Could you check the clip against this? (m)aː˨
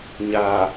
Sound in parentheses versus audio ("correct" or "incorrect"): incorrect